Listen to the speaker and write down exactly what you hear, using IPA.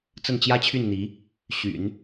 t͡s ə˥˩ n t͡ɕ j ä˥ t͡ɕʰ y˥˩ n n̪ i˧˥ | ɕ y̰˨˩˦ n

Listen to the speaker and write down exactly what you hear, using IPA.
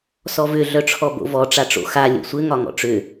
s ɔ v ʏ ɮ œ ʈ͡ʂʰ ɔ b o̰ v ɔ ʈ͡ʂ a ʈ͡ʂ o̰ x a lʲ o̰ sʷ ɘ ŋ ɒ ŋ ɔ̰ ʈ͡ʂ ʏ

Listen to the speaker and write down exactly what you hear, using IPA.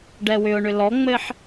ɖ ɛ w ʏ ʊ̯ ɳ ʏ l ɔ ŋ͡m ɘ ħ

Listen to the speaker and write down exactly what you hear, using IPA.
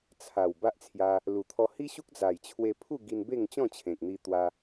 t͡sʰ a˨˩ w b a˦ ʔ t͡sʰ j a˧ | l u˨˩ t̪ʰ ɔ˧ h i˦ ɕ u˦ k̚ d͡z a˨˩ j t͡ɕʰ w e˧ pʰ u˥˧ ɡ i˧ n b e˥˧ ŋ t͡ɕ ɔ̃˥˧ t͡ɕʰ ẽ˨ k̚ n̪ i˧ t̪ w a˦

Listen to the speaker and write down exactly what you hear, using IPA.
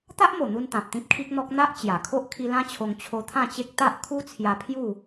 t̪ a˦ ʔ m o˨˩ n̪ u˧ n t̪ ã˨ p̚ t̪ ĩ˦ p̚ kʰ i˦ k̚ n̪ ɔ˦ k̚ n̪ a˦ ʔ t͡ɕ j a˨˩ kʰ o˦ ʔ kʰ i˧ l ã˦ t͡ɕʰ o˧ ŋ t͡ɕʰ o˧ t̪ʰ ã˥˧ t͡ɕ e˦ k̚ t̪ a˦ ʔ kʰ u˦ t͡sʰ j a˧ pʰ j u˥˧

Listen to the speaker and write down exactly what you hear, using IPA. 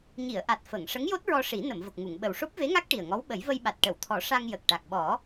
ɲ i˨˩˨ ə̯ ʔ a˨˩ t̚ f ə˨˩˨ ŋ ʂ ə˧˥ ŋ j o˦˥ t̚ ɹ ɔ˧ ʂ i˨˩˦ n ə˨˩˨ m v ə˨˩ k̚ ŋ u˨˩˨ ŋ ɓ ə˨˩ w ʂ o˦˥ p̚ v e˧˥ ŋ a˦˥ k̚ ʈ i˨˩ ə̯ ŋ ɔ˧˥ w ɓ ə˨˩˦ j v ə˧ j ɓ a˨˩ t̚ ʈ ə˨˩˨ w t̪ʰ ɔ˨˩˦ ʂ a˧ ŋ j ə˨˩ k̚ ʈ a˨˩ k̚ ɓ ɔ˨˩˦

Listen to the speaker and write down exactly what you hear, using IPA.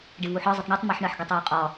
ɖ ɪ v u ħ ɒ zˤ ə tˤ ɳ u tˤ m ɜ ħ ɳ ɜ ħ ɡ ɪ tˤ w ɒ qʼ ɒ

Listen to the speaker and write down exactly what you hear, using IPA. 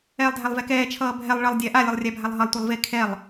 ɛː lˠ dʱ æ lˠ v ɛ k ɛː t͡ʃʰ ʌː bʱ ɛ lˠ ɭ ʌ lˠ dʲ æ ʔ a lʲ ʌ lˠ rʲ æ bʱ a lˠ ɦ ʌ lˠ tʷ e lˠ v e kʰ ɛ lˠ

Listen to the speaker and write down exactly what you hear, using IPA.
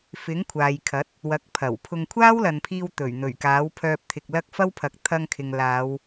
f ɪ˨˥ ŋ kʷʰ aː˨ j kʰ ɐ˨˥ t̚ | w ɐ˨˥ k̚ pʰ ɐ˨˩ w pʰ ʊ˧ ŋ kʷʰ aː˥ w l ɐ˨ n pʰ iː˧ w t̪ ɵ˨˩ ɥ n̪ ɵ˨˩ ɥ k aː˨˥ w pʰ œː˧ p̚ t̪ʰ ɪ˨ k̚ l ɐ˥ k̚ f ɐ˥ w pʰ ɐ˨˥ k̚ t̪ʰ ɐ˧ ŋ kʰ ɪ˨ ŋ l aː˨˧ w

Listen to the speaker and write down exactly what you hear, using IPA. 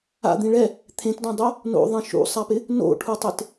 a̰ d̪ ĩ ɭ ɛ | t̪ʰ ẽ t d õ dˤ o | n o̰ ðˤ ẽ ʃ ṵ sˤ a p ɪ | n o̰ ʈʰ u tˤ ɪ t

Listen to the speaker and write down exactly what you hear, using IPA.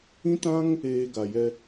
ĩ˦ t ã˦ ŋ | eː˧ ɡ a˨ j ɛ˧

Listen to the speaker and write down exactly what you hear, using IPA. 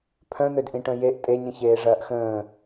pʰ œ̃ n̪ ø d ʔ ĩ ʈ œ̃ j e ʔ tʼ e ɲ ĩ ç eː ʐ ɐː ʔ x ə̃ː

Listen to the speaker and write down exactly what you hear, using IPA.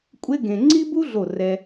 kʷʼ e˥ ɡ ẽ˧ ŋ͡ǀ i˥ b u˥ ɮ o˧˩ r ɛ˧

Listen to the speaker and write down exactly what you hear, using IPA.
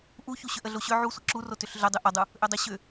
ʔ u ç u ɕ ʏ ʔ ə ɮ o ɕ ʏ ʕ u sʷ ə ǁ u r o t ʏ ɬ ɮ ʏ dˤ ʏ ʔ ə dˤ u | ʔ ʏ dˤ ʏ ɕ ʏ

